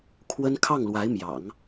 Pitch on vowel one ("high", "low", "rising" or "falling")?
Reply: high